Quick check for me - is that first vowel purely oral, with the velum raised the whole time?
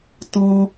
no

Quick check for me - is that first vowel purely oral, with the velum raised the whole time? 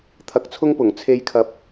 yes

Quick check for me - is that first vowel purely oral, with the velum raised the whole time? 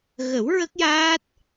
yes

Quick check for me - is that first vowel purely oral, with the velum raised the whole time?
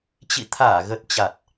yes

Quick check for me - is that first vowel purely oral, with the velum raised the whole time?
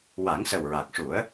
yes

